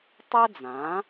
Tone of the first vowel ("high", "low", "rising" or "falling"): high